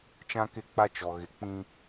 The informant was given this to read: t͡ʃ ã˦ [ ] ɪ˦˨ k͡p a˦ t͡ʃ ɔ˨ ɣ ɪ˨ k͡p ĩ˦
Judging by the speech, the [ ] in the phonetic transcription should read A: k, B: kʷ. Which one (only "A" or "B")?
A